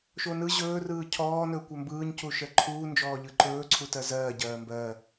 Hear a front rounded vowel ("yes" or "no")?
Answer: no